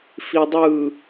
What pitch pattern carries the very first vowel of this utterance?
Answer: low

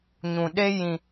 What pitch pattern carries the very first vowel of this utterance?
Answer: low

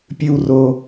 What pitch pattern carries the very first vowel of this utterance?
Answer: high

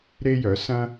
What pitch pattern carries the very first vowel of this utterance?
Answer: high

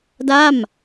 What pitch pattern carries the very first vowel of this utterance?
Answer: falling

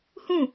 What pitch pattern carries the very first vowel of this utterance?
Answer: falling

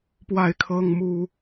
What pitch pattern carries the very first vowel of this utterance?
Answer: falling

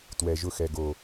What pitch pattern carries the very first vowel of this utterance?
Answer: low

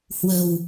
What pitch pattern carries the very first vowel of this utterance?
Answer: low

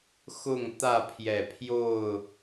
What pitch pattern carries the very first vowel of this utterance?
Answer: falling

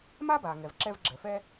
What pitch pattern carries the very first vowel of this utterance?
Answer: high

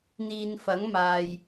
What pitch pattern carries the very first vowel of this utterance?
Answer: low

